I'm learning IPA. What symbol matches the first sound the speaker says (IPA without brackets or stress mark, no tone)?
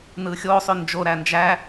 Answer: n